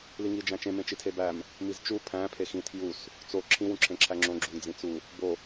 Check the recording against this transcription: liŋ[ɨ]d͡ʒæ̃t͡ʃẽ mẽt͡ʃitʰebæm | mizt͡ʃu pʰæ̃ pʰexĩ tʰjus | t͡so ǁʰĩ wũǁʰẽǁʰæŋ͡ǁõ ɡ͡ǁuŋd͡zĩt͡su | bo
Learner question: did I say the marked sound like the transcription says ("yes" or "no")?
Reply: no